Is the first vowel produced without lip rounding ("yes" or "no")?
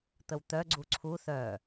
yes